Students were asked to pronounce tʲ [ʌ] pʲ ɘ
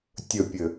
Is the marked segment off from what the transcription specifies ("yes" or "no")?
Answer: yes